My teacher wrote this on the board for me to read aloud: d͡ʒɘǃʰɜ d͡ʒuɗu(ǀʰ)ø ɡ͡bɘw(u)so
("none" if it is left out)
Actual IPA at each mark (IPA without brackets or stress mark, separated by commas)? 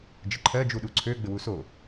ǀʰ, u